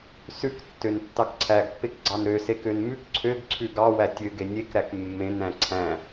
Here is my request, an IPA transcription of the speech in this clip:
s ʉ k tː ø n tː ɑ k ǀʰ æ ɡ pː e k ɡ͡ǀ ɑ n ɾ ø s e k ø n m ʉ k ǀʰ ø ɡ ǀʰ ʉ ɡ ɑ w æ tʲ ø ɡ e nʲ e k ɾ æ k mː ẽ n æ̃ ǀʰ æ̃

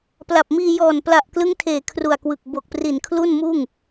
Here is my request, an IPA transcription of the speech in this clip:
p l a˨˩ p̚ m iː˧ j ɔː˨˩ n p l a˨˩ ʔ k l ɯ˦˥ ŋ tʰ eː˨˩ kʰ r u˨˩ a̯ k w ɯ˨˩ k̚ b o˨˩ k̚ p r i˨˩ n kʰ l u˥˩ n m uː˥˩ ŋ

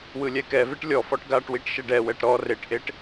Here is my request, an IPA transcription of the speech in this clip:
w ɯ lʲ ɛ k ɛ v e ʈ lʲ ɔ f ɔ ʈ ɡ a ʈ w i ʈ ʃ ɛ ɖ ɛ w ɛ ʈ ɾ ɔ r e ʈ ʔ e ʈ

